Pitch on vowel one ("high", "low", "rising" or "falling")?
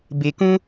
low